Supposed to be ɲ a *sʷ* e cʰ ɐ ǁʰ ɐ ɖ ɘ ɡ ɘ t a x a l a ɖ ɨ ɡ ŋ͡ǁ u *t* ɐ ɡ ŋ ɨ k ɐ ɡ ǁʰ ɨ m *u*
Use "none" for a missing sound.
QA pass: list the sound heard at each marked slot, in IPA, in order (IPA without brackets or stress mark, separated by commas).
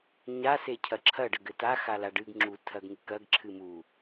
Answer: s, tʰ, u